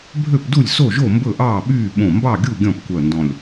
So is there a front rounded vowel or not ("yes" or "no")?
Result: yes